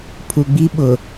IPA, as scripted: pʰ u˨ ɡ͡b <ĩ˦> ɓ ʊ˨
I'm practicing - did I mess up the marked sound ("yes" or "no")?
yes